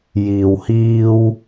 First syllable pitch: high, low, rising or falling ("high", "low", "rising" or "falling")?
low